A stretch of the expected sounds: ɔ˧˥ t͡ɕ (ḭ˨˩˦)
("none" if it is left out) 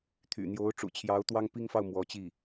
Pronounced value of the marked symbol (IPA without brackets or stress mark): i˥˩